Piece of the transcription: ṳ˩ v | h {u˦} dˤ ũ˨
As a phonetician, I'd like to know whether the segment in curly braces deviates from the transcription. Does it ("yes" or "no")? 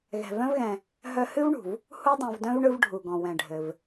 no